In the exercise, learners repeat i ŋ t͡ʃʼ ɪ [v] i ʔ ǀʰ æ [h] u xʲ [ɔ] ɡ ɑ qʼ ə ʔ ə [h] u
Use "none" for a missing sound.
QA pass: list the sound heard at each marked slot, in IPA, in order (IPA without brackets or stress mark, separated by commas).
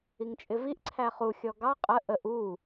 v, χ, ɔ, ʔ